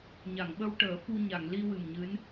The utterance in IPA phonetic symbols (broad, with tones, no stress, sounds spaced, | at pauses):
ɲ a˨˩˨ ŋ ɓ ə˧ w ʈ əː˨˩˦ f u˧ ɲ a˨˩˨ ŋ l i˧ w ɨ˨˩ m ɲ ɨ˧˥ n